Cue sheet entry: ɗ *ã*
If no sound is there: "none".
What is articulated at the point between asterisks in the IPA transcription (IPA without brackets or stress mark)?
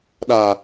a